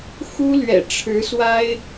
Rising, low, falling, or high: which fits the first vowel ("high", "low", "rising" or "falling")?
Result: high